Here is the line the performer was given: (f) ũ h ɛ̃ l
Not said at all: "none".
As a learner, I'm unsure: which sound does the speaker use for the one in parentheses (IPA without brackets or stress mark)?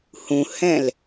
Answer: h